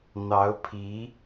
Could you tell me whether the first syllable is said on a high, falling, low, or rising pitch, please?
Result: rising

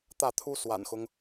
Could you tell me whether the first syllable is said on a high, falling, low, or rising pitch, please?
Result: falling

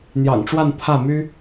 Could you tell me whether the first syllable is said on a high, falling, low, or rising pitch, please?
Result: low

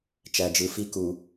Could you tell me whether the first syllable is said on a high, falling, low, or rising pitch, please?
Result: low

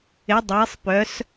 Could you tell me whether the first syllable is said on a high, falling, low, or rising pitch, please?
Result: rising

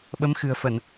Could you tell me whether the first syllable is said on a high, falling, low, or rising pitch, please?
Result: rising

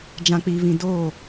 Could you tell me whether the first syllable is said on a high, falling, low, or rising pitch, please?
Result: low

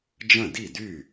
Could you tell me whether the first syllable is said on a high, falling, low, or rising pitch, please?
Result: falling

